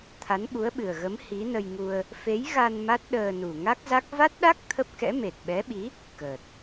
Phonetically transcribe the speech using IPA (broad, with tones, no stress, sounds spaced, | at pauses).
t̪ʰ a˨˦ n ɓ u˨˦ ə̯ ɓ ɨ˨˩ ə̯ ɣ ə˨˦ m h i˨˦ n ə˧ j ŋ u˧ ə̯ | f e˨˦ j ɣ a˧ n m a˦˥ t̚ ɗ əː˧ n u˨˩ ŋ a˦˥ k̚ z a˦˥ k̚ v a˦˥ t̚ ɗ a˦˥ k̚ t̪ʰ ə˦˥ p̚ k ɛ̰˧˥ m e˨˩ t̚ ɓ ɛ˨˦ ɓ i˨˦ | k əː˨˩ t̚